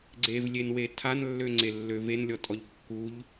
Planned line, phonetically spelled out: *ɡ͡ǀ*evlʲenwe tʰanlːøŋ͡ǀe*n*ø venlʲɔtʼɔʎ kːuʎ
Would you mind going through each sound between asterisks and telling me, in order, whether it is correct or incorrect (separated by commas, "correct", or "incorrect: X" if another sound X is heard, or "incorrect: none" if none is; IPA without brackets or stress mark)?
correct, incorrect: lː